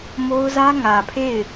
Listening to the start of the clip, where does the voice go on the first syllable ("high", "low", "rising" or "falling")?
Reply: high